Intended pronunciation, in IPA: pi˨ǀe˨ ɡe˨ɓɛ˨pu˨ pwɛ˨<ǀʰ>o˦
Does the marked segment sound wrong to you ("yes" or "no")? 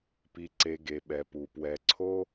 no